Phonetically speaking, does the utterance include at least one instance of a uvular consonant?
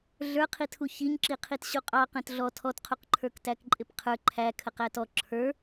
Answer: yes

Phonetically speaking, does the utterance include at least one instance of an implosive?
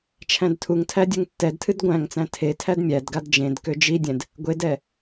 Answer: no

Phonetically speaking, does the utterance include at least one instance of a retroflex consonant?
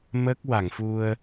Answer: no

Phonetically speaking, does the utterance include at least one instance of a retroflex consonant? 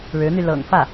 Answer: yes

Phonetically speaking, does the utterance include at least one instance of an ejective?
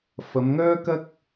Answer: no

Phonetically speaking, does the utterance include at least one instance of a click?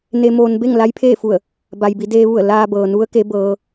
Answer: no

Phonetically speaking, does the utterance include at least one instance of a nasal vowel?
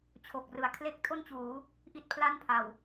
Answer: no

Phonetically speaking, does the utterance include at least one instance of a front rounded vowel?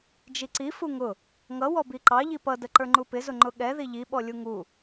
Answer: no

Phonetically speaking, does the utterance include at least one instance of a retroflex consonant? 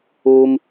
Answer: no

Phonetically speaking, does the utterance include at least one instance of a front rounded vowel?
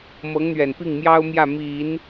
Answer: no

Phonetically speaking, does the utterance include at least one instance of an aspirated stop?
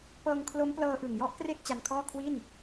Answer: yes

